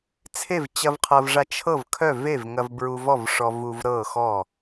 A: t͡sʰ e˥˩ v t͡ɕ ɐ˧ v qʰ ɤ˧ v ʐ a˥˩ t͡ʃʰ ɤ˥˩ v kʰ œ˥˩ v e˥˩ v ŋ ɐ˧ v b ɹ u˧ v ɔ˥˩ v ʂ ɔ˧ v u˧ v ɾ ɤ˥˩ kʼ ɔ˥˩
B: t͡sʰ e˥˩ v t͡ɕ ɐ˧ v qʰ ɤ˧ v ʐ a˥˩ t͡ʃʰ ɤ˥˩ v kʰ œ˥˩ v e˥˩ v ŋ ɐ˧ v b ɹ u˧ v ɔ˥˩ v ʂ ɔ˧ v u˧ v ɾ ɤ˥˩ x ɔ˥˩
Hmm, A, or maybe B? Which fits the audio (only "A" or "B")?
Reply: B